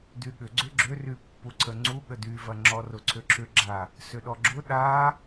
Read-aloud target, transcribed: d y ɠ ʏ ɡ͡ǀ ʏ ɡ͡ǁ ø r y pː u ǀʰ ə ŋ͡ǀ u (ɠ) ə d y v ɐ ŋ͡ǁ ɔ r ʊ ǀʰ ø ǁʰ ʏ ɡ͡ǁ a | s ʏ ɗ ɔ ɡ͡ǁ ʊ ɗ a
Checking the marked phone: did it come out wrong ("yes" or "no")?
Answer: no